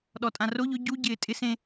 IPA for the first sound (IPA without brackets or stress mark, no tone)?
ɗ